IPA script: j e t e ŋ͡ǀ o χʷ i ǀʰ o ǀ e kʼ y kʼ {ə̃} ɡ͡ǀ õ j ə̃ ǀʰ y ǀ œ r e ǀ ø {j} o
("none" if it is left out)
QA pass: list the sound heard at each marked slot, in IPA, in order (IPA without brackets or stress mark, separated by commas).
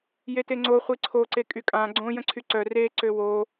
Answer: ã, w